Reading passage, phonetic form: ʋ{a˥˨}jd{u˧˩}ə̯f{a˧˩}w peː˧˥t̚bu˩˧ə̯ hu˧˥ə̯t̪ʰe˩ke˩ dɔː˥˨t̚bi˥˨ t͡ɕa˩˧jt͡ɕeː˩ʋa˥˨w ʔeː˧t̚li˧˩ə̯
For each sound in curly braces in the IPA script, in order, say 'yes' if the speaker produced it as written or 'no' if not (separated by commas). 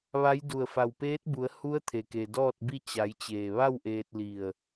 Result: no, yes, yes